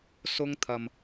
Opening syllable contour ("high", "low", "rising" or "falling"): high